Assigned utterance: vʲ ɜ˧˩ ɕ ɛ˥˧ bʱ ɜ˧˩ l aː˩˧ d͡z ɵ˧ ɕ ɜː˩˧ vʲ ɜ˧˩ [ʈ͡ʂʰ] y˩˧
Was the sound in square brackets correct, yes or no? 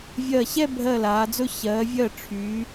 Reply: yes